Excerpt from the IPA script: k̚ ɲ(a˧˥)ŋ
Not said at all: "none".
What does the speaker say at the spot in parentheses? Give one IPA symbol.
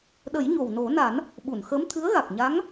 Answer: a˧˥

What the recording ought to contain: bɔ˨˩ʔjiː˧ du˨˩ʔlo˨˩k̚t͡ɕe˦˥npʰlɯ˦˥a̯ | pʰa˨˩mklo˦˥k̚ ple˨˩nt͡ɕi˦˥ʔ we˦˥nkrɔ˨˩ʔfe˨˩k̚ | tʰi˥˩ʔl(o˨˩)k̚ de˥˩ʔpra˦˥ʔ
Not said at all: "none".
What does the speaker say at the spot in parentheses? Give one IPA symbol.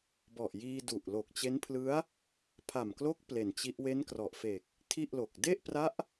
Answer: o˨˩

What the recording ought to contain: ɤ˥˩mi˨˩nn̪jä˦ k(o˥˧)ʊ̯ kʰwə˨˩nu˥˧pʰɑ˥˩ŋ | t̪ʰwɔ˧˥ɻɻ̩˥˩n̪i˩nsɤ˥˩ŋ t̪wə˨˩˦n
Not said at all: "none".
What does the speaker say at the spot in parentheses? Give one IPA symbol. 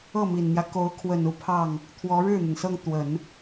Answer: o˧˥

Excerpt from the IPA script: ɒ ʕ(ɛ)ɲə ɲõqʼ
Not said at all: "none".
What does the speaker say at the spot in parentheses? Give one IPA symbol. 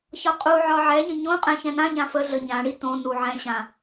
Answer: ɛ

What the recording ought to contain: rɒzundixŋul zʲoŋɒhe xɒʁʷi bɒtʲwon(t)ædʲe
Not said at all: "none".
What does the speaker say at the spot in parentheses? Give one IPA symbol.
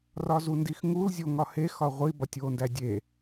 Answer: d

